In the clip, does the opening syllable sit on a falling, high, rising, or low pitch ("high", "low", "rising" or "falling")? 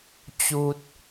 high